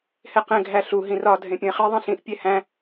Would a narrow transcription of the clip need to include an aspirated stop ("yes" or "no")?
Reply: no